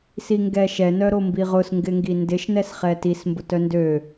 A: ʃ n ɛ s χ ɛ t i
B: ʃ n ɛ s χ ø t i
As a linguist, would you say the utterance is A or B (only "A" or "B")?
A